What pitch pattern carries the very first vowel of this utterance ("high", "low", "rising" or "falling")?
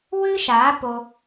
high